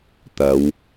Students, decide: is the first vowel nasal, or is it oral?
oral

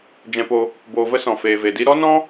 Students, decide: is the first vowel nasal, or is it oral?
nasal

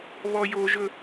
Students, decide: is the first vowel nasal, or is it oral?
oral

